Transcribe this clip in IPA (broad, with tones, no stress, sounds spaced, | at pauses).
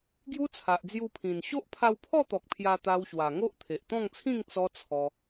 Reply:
ɡ j u˦ t͡sʰ a˨ ʔ d͡z j u˧ pʰ ĩ˨˩ n ɕ o˦ ʔ pʰ a˧ w pʰ ɔ˥˧ t̪ ɔ˨ k̚ pʰ j a˧ t̪ a˧ w ɕ w a˨˩ ŋ o˦ ʔ t̪ʰ e˨ ʔ t̪ ɔ̃˥˧ ŋ t͡sʰ ĩ˥˧ ŋ t͡s ɔ˦ t͡sʰ ɔ˧